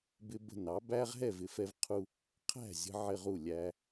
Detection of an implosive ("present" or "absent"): absent